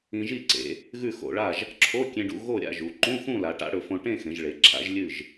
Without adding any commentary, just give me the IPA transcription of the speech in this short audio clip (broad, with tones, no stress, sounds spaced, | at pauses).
ĩ˧ ʒ i˥˨ ǀ ḛ˩˧ | ɣ ʉ˥˨ x o̰˧˩˧ ɭ a˥˨ ʒ | ǁʰ o˧˥˧ kʲ ẽ˧ ɖ ṵ˧ ɣ o˥˨ ɾʲ a̰˥˨ ʒ u˩˧ ǃ ũ˧˥˧ x ũ˥˨ l a˩˧ ʈ a̰˨˥ ɽ ɵ˩˧ f õ˧ ʈ ẽ˥˨ x ẽ˩˧ ʒ ɭ e˩˧ ǁʰ a̰˨˥ ʒ lʲ ɨ˥˨ ʒ